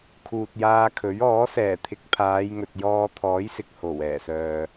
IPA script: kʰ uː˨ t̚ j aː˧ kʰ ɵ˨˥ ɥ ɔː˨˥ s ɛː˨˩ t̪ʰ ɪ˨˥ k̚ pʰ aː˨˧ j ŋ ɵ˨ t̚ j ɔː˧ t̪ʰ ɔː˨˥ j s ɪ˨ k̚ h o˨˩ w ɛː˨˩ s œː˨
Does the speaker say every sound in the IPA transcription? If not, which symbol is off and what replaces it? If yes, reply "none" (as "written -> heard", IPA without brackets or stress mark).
none